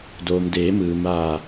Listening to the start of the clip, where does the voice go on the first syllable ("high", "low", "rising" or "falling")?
low